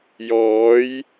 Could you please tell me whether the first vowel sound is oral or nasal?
oral